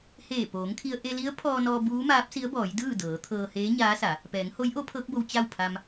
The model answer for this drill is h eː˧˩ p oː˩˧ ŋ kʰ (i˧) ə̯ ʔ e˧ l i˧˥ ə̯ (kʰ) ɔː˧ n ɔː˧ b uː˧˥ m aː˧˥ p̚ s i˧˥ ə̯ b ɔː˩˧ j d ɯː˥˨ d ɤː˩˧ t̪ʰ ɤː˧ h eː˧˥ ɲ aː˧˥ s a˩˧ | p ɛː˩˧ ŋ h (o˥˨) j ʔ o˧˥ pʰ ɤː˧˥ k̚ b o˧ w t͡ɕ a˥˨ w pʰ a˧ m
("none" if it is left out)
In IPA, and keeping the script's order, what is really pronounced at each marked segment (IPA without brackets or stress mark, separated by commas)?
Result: i˧, pʰ, o˧˥